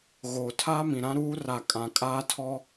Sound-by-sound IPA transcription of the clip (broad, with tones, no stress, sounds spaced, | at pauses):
ɣ oː˨ tʰ aː˦ m ĩ˨ ɾ ã˦ ɾ uː˦ r a˨ kʼ ã˨ kʼ aː˦ tʰ ɔ˦